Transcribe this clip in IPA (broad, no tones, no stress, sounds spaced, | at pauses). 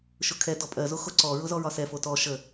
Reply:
ʃ ʊ kʰ ɛ d ɔ pʼ ɜ z o x o ǀ ɔ ɹ ʊ z ɔ ɹ ɒ s ɛ f o t ɔ ʃ ə